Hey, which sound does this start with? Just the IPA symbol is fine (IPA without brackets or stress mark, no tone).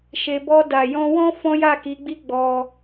ʃ